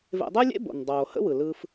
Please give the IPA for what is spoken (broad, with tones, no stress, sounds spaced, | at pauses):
v ḛ˧ dˤ y˦ lʲ ḛ˦ b o̰˨ n dˤ oː˨ h ə̰˦ w ɯ˨ l ɯ˧ f